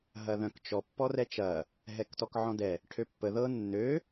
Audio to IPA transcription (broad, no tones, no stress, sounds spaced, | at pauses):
ɦ ɐ ð œ̃ k t͡ʃ ɔ pː ɔ r ɛ t͡ʃ ɐ | ɦ ɛ k t ɔ k ʕ ɔ̃ d ɛ | ʈʰ ø pː ə ð ɤ nː ø